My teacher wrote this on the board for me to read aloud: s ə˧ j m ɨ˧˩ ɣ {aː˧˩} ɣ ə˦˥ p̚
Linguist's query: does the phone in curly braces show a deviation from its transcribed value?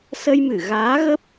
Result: yes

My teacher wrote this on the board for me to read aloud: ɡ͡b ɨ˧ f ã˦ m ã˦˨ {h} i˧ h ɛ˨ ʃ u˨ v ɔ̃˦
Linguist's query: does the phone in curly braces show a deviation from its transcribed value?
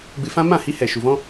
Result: no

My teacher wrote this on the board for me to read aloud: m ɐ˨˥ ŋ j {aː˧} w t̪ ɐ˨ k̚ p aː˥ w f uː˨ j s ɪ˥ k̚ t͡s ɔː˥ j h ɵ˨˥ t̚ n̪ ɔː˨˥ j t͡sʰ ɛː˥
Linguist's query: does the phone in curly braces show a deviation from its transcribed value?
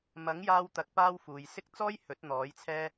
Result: no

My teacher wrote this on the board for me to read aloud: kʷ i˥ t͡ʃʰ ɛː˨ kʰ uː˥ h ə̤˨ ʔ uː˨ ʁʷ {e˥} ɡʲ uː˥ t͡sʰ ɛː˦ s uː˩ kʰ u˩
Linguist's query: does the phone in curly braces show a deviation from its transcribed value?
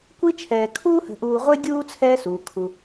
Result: no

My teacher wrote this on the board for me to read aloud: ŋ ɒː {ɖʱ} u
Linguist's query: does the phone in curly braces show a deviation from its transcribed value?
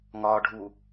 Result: no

